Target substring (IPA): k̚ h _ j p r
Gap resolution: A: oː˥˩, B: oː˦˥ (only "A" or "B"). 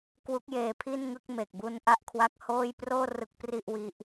A